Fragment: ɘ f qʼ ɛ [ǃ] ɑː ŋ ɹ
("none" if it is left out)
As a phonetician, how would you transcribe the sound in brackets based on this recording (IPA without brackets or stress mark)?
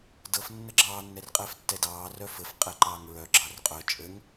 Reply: ǃ